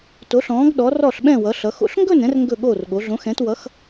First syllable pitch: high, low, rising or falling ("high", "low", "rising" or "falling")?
rising